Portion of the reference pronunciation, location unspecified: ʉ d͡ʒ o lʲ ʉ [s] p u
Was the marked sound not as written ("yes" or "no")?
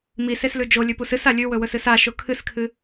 yes